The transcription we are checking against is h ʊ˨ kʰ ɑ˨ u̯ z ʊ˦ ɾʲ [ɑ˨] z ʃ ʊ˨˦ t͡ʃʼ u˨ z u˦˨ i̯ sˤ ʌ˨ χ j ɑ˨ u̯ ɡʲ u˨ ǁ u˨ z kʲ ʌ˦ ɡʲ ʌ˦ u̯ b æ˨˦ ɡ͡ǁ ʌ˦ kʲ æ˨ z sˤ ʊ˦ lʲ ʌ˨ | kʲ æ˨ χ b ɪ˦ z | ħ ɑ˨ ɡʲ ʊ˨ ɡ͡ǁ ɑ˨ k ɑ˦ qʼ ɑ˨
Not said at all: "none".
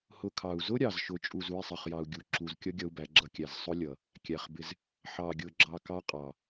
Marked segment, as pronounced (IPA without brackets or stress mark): ɑ˨